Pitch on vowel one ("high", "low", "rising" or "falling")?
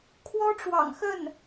high